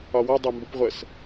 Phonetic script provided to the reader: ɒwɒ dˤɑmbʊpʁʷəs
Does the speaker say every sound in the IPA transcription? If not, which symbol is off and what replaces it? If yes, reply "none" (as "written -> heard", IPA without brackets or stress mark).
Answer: none